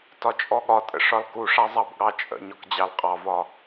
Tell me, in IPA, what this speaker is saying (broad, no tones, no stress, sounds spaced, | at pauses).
t ɒ t͡ʃʼ ɔ ɠ ɒ tʼ ə̰ ʂ ɒ l k u ʂ a zˤ ɑ b ɠ ɑ t͡ʃʼ ə̰ ɲ ɒ k d͡ʑ ɑ l qʼ ɑ v ɒ